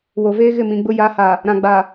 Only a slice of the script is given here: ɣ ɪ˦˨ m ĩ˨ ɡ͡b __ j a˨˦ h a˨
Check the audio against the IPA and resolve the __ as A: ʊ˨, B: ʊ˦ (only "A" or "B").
B